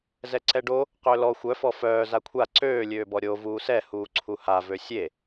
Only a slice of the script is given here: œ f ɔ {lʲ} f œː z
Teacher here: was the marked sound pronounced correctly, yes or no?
no